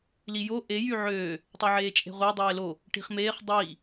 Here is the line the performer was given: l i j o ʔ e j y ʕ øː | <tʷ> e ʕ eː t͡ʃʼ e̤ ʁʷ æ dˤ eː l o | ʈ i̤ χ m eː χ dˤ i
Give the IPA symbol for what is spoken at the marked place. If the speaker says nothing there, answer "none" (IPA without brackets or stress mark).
tˤ